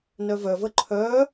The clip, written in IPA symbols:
n œ v œ v ə ǃʰ œ

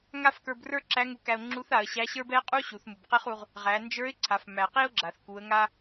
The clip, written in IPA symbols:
ŋ a˥ f k ə˞˧ b r ə˞˥ ǁ æ˧˥ ŋ u˧ k æ˧ ʊ̯ ŋ͡ǁ u˧˥ θ a˩˧ ə̯ ɕ æ˧˥ ɕ ə˞˥ b ɛ˥ qʼ u˥ ɕ u˩˧ θ m u˩ b q e˥ χ u˧ ʁ | ʁ æ˩˧ n d͡ʒ ə˞˧˥ ɪ̯ ǀʰ a˩˧ f m æ˩ q i˥ ʊ̯ ɡ͡ǁ a˩ θ k u˩˧ ə̯ ŋ a˧

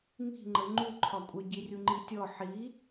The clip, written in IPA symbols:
ŋ i̤ ŋ͡ǃ ə ŋ͡ǃ u ǃʰ ɒ kʷʼ œ ɟ i rʲ u ŋ͡ǃ i tʲ ɔ ħ i

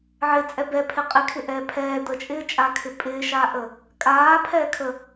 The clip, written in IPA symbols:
ʕ ɪ t͡sʼ ɛ b ɛ pʰ ɪ qʼ ɪ kʰ ɪ ʔ ɛː pʰ ɛː d̪ ə t͡ʃʼ ɪː t͡ʃʼ a kʰ ɪ pʼ ɪː ʃ aː ʔ ə | kʼ aː pʰ ɛː kʰ ə

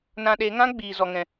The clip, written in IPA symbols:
n ã˧ ɗ e˨˦ ŋ ã˦ ɡ͡b iː˨ z ɔ˨ ŋ ɛ̃˨

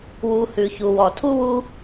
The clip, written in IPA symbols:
w u˨ h ʉ˩ ç u˩ w ɔ˩ tʰ u˥ w u˦

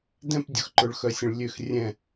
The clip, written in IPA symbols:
d ɛ̃˥˨ p dʲ ʊ˨ x ǃ ʊ˨ ɭ x œ˨ sʲ ə̃˨ ɭ lʲ ø˥˨ x rʲ ɛ̃˥˨

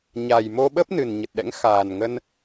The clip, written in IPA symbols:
ɲ a˨˩ j m o˧ ɓ ə˦˥ p̚ n ɨ˨˩ n ɲ ə˨˩ t̚ ɗ ɛ̰˧˥ ŋ x aː˨˩ n ŋ ə˧ n

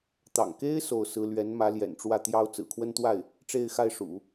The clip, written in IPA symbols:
t̪ ɑ̰˨˩ ŋ k e˥ ɪ̯ s o˥˩ ʊ̯ s ɹ̩˥ l ɥ ɛ˧˥ n m ä˧˥ l j ɛ̰˨˩ n ʈ͡ʂ w ä˥˩ t̪ j ɑ˥ ʊ̯ t͡s ɹ̩˨˩ kʰ w ə˥ n t̪ w a˥˩ ɪ̯ | ʈ͡ʂ e˥˧ ɪ̯ x a˥˩ ɪ̯ ʂ ṵ˨˩˦

